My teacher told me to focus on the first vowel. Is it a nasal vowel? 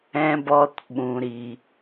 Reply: yes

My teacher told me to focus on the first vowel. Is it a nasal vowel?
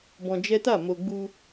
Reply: yes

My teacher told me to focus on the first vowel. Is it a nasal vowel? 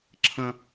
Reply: yes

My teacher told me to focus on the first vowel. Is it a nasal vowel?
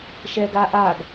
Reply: no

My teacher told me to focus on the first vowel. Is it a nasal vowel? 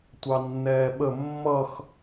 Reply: no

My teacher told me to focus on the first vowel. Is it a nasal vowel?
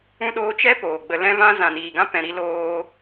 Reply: yes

